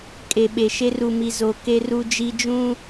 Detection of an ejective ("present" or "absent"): present